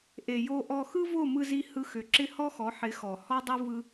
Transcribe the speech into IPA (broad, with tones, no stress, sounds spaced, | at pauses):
ʔ e˨ j o˧ ʔ ɔ˧ x ɯ˦ v o˦˨ m ɯ˧ z i˧ h ɯ˧ x ʏ˨ ǁ ɪ˦ h ɔ˦ x ɔ˨˦ ħ ɪ˨˦ x ɔ˨ h ɔ˦ dˤ ɯ˦ v ɯ˦